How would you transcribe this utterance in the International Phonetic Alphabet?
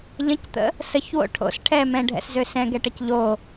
ʎ ə̃ c t̪ ə̰ | s ə ç w o̰ ʈʰ o̰ s ʈʰ ɛ m ɛ̃ ɖʱ ɛ̰ s z ø s ɛ̃ ɡ ɛ ʈ ə c ʎ o

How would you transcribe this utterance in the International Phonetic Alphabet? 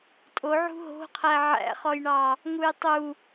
tʼ o ʕ ṳ ɦ o̤ qʰ æ ʕ æ̰ χ ɔ j ɳ ɑ | ŋ u j tˤ u

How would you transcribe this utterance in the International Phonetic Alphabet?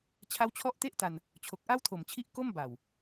t͡ɕʰ a˦˥ w t͡ɕʰ ɔ˦˥ ʔ t e˥˩ ʔ t a˧ n | t͡ɕʰ o˨˩ k̚ ʔ a˥˩ w tʰ o˨˩ m t͡ɕʰ i˦˥ ʔ k o˥˩ m b a˨˩ w

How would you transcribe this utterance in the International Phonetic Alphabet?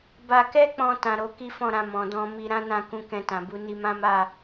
b a˧ k ɛ˦ k͡p ɔ̃˧ t ã˧ ɾ o˧ k i˦ f ɔ̃˦˨ ɾ ã˧ m ɔ̃˨ d ɔ̃˧ m i˧ ɾ ã˦ n ã˦˨ k ũ˧ k ɛ̃˧ t ã˨ b u˨˦ n i˧ m ã˦ m a˦˨

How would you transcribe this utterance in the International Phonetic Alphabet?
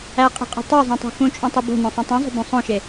æ qʼ e̤ qʼ e̤ tˤ o zˤ õ tˤ ṳ x ũ t͡ʃʼ ũ tˤ u b o̤ n õ sˤ ũ tˤ ũ zˤ o̤ b ũ sˤ õ ʃ e

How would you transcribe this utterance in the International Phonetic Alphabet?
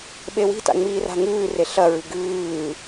ɓ e w i̤ t a̰ ŋ͡m iː r a̤ ŋ ʉː r e ɬ ɐ ɹ ɨ ɡ ʉː

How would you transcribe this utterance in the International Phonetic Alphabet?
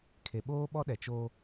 kʰ e˨ ɓ oː˦ ɓ ɔ˦ ɗ ɛ˨ t͡ʃ oː˦

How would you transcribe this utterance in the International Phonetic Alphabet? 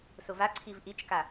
s ʊ v a ǀʰ i v ʔ i t͡ʃ k a

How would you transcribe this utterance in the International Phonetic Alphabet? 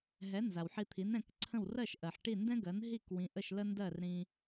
ɦ ɛ˩˥ n z a˩ w ħ i˧ t̪ʰ i˩˥ n ɛ̃˧ k ǀʰ ə̃˥˩ w r ɜ˥˩ ʃ ʔ ɜ˩ ħ ʈ i˥˩ n d ɛ̃˥ ɡ ɜ˩˥ n ɦ i˥˩ k w ĩ˩˥ ʔ ə˥˩ ʃ l ə˥ n d ɜ˥˩ r ɾ ĩ˧

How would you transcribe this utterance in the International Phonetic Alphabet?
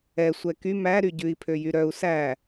ɛ sʷ ɛ k y m æ ɾ y ɟ ʉ i̯ pʰ ø j y ɾ œ u̯ s æ

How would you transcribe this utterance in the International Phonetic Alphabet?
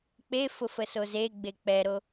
k͡p e f ʊ f ə s o z e ɡ͡b e k͡p ɛ ɾ o

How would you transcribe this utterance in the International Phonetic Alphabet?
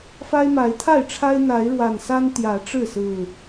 f a˦ ɪ̯ m a˨˦ ɪ̯ t̪ʰ a˥˨ ɪ̯ ʈ͡ʂʰ a˦ ɪ̯ n̪ a˨˦ ɪ̯ ɻ w a˨˩ n s a˦ n t̪ j ä˨˦ ʈ͡ʂ ɻ̩˥˨ s ɹ̩˨˩

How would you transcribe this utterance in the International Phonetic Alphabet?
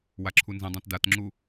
w a ǁʰ u n z ĩ dˤ ã t d a t ŋ͡ǁ u

